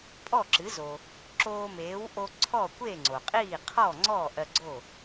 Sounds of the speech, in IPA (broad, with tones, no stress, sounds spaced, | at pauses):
pʼ ɔ˥˩ ǁ ɨ˩˥ z o˩ | ǁ oː˧ m eː˩˥ w ʔ o˧ ǀʰ ɔ˥˩ kʷ e˥˩ ŋ͡ǀ o˩ qʼ iː˥˩ qʰ ɔ˥˩ ŋ͡ǀ ɔ˥˩ ʔ ɜ˧ ɡ͡ǀ o˥˩